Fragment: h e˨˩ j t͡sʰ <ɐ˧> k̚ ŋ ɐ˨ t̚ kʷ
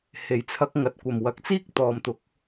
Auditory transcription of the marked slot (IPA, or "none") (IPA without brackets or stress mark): ɐ˧